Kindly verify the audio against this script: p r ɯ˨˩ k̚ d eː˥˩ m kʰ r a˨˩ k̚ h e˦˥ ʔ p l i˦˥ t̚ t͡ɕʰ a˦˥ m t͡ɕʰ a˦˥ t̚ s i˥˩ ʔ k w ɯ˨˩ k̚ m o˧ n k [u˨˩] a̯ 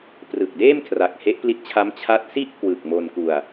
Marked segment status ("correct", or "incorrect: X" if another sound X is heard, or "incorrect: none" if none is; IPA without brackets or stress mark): incorrect: u˧